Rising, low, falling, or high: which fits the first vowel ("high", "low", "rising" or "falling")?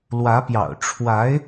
rising